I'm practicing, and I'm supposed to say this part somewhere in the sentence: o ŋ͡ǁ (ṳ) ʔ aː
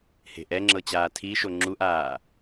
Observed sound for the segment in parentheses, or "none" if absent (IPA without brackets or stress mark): u